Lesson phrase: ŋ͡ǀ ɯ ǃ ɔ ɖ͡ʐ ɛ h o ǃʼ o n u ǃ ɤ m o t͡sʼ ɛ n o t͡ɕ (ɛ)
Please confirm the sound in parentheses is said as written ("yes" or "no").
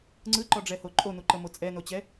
yes